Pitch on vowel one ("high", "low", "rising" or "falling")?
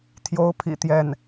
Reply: rising